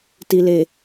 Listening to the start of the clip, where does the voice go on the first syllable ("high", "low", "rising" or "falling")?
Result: low